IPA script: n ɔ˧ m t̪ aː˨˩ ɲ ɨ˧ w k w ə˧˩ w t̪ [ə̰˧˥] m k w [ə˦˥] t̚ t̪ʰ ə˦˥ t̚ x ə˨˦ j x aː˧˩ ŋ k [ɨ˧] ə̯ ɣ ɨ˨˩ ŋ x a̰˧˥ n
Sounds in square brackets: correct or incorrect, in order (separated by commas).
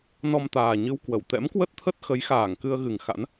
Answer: incorrect, correct, correct